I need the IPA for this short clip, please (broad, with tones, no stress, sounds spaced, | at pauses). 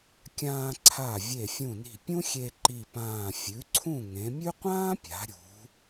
kʲ ãː˧ ǀʰ a˧˩ vʲ e˧˩ fʲ ũ˧˩ n i̤˧˩ pʲ ũ˥ xʲ e˧ ǃ i˧˩ p ãː˧˩ fʲ ʉ˩˧ ǀʰ ũ˧˩ ŋ ẽ˩˧ mʲ ʉ˥ qʷ ãː˥ pʲ a̤˩˧ ɾʲ ṳ˩˧